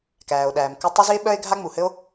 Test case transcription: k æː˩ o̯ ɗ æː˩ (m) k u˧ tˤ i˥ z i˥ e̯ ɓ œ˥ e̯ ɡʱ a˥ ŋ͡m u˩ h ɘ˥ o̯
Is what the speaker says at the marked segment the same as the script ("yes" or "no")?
yes